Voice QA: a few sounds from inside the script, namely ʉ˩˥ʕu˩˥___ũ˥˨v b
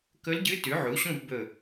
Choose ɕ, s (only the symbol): ɕ